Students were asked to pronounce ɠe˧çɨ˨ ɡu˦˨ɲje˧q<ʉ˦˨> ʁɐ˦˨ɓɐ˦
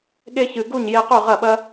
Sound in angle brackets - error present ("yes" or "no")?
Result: no